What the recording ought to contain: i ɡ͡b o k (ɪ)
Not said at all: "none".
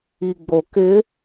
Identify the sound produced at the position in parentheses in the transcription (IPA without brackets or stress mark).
ɪ